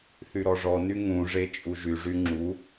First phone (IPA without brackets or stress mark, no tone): θ